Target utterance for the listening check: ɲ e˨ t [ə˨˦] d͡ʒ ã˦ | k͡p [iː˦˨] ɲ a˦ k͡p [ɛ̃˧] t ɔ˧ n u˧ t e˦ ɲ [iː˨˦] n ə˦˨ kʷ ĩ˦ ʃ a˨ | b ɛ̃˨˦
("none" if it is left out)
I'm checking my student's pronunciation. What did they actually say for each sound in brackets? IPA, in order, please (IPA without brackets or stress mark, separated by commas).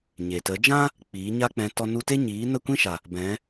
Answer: ə˨˦, iː˨˦, ɛ̃˧, iː˨˦